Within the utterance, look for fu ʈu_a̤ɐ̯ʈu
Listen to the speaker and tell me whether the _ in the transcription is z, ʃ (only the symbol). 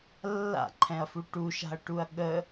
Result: ʃ